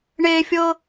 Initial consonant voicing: voiced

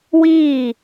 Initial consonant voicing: voiced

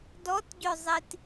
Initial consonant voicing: voiced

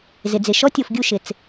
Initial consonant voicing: voiced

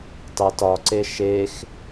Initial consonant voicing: voiceless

